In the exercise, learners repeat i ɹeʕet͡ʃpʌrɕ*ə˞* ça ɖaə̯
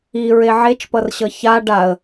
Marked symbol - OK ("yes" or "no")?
no